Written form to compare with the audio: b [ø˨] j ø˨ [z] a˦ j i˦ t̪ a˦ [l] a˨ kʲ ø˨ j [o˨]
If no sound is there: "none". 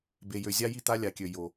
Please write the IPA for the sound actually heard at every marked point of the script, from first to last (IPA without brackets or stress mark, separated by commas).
e˨, zʲ, lʲ, o˨